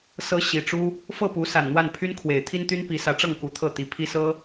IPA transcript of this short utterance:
s ɤ˧˥ ɕ i˨˩ ʈ͡ʂ u˥ | f ɤ˥˩ p u˧˥ s a˨˩ n n̪ w a˥˩ n pʰ y˥ n kʰ w e˨˩ ɪ̯ t̪ʰ i˥ n t̪ y˥ n p i˧˥ s ä˧˥ ʈ͡ʂ ɤ˥˩ ŋ k u˧˥ t̪ʰ ɤ˥˩ t̪ i˨˩ pʰ i˥ s ɤ˥

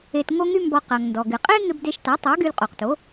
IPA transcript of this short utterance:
e˧ t ŋ o˥ ŋ y˥ m b ɔ˧ q a˩ ŋ n d ɔ˩ ɡ ɪ˩ qʼ e˥ ŋ ɪ˧ b d e˧ ʃ t a˩˥ tˤ o˩˥ ɡ y˧ l qʼ o˩ q t o˩˥

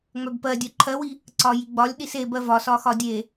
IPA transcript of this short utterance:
ŋ͡m œ b p ɜ dʲ œ ǃʰ ɜ w i | ǀ ɒ j i ɡ͡b ɒ lʲ ɗ i s e b ɜ v ɒ s ɒ x ɒ dʲ e

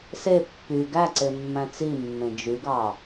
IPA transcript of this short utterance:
s e pː y ɡ æ ǀ e mː æ̃ t͡s i mː ẽ d͡ʒ y ɡ ɑ

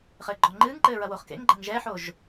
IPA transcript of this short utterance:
χ ɘː ɡ͡ǃ ɔ ŋ͡ǃ ɨː ŋ ǃ ɘː ɹ ɐ w o χ k ḛ ŋ ɡ͡ǃ ɐ ŋ ʒ ɛ ħ o ʒ

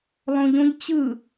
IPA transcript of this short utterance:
lˠ õ ʎ õ ʎ t͡ɕ ɯ

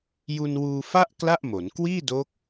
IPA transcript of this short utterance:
j u˧ n w uː˧ f a˥˩ ʔ k l a˥˩ ʔ m o˩˦ n k w iː˥˩ d oː˦˥ k̚

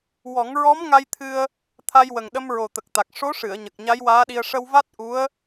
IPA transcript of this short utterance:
w ɔ˨˩˦ ŋ ɹ ɔ˧˥ m ŋ a˧ j t̪ʰ ɨ˧ ə̯ | t̪ʰ a˧ j w ə˨˩ ŋ ɗ ə˧ m ɹ o˨˩ t̪ ə˨˩ k̚ t̪ a˨˩ k̚ ʂ o˧˥ ʂ ɨ˨˩˨ ə̯ ɲ ə˨˩ k̚ ɲ a˧˥ j w aː˧˥ ɗ i˧ ə̯ ʂ ə˧ w v a˦˥ t̚ ʔ u˧˥ ə̯

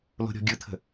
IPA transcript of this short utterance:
l o̤ ɾʲ ɔ̤ ɡʲ ɯ t̪ʰ ə̤

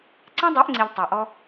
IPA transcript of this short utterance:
ǀ ɛ̃˦ dˤ ø˨˦ ʔ ŋ͡ǀ i˨ ʎ tˤ a˨ ʔ ɔ˦

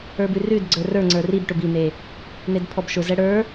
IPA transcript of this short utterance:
ə˞ b ʉ r ʉ d ɡ͡ǀ ə˞ r ə˞ ŋ͡ǀ ə˞ r i b ʈ ʊ b i n e | n e d pʰ ɔ b ʃ ʊ z ɛ ɽ ə˞

